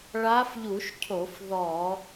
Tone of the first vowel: rising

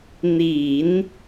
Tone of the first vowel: low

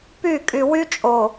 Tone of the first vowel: falling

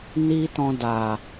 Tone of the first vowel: high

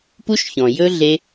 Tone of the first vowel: high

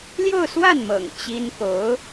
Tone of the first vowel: falling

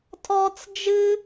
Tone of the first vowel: high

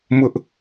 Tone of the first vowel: high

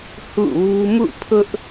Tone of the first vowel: falling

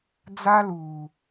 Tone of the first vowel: high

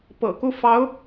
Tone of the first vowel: low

